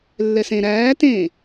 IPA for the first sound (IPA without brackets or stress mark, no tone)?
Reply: lː